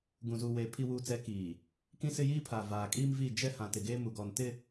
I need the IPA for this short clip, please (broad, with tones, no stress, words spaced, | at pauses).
ɡũ˨zuː˨weː˨ pʰi˨wuː˨t͡sɛ˨˦ kiː˨ | kĩ˦sɪ˦jiː˦pʰaː˨ vaː˨ kʼiː˦mviː˦˨ d͡ʒɛ˦ hã˨tɪ˨ɡe˦ mu˨ɡɔ˨n tɪ˦˨